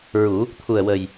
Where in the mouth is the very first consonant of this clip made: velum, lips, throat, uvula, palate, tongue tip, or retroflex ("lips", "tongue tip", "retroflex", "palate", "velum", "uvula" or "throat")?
tongue tip